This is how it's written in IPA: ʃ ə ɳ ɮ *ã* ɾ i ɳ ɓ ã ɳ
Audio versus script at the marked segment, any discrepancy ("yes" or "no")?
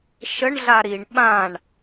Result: yes